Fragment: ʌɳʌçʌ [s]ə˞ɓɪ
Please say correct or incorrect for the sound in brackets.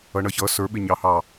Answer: correct